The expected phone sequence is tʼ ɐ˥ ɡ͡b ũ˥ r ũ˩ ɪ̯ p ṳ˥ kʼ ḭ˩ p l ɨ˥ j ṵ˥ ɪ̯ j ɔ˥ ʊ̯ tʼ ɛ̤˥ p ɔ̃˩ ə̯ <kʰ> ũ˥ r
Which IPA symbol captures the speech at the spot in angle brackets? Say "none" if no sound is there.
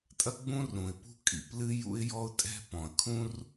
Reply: kʰ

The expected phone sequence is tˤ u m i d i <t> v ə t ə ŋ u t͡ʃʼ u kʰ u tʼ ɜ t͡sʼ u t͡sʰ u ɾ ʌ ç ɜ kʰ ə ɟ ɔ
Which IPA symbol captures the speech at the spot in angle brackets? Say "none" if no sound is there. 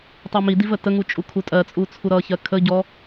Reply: none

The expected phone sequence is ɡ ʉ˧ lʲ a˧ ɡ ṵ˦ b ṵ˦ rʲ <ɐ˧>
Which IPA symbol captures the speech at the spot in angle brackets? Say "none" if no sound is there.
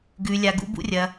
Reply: ɐ˧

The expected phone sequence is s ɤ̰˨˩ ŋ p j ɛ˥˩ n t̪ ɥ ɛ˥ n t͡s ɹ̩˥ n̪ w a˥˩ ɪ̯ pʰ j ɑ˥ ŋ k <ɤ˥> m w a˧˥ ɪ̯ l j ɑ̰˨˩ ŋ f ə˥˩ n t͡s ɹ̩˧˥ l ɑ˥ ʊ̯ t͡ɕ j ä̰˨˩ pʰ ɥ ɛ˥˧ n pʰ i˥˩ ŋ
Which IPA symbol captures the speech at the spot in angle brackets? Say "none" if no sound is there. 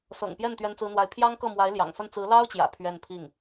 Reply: ɤ˥˩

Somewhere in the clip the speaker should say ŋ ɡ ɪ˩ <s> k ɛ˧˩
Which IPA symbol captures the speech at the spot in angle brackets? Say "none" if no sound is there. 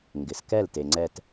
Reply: s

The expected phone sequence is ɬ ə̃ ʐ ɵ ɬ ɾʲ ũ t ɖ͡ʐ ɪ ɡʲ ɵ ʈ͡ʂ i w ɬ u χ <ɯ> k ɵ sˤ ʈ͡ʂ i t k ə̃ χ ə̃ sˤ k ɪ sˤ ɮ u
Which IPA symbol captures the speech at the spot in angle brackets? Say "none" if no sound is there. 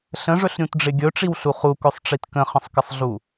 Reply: u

